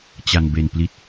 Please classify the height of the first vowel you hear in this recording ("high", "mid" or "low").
low